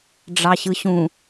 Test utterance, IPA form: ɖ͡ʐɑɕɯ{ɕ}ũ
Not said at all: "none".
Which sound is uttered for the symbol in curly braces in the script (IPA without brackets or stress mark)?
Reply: ɕ